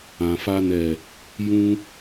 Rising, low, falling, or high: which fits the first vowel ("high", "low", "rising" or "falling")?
low